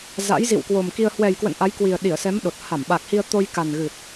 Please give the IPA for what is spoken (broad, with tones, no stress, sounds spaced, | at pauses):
z a̰˧˥ j z ḭ˧˨ w k w o˨˩ m k i˧ ə̯ h w ɛ˨˩ j k w ə̰˧˨ n ʔ a˨˦ j k w i˨˩ ə̯ ɗ i˧˩ ə̯ s ɛ˨˦ m ɗ o˨˩ t̚ h a˧˩ m ɓ a˨˩ k̚ h i˧ ə̯ t̪ o˧ j k a˨˩ n ɣ ɨ˨˩ t̚